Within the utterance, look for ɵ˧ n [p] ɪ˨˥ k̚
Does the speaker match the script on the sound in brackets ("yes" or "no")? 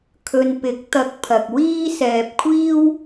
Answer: yes